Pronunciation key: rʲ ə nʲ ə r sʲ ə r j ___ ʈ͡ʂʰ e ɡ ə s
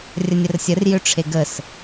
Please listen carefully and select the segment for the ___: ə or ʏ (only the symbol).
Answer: ʏ